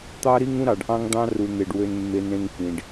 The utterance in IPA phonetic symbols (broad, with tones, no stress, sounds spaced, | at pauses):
t̪ ɑ˦ ɾ i˦ ŋ ũ˦ ɾ ɑ˨ ɖ ʔ ɑ̃˦ ŋ d̪ ɑ̃˦ r u˨ n̪ e˨ ɖ w ø˦ n mː e˦ n ɾ ẽ˦ ŋ f ĩ˨ ɖ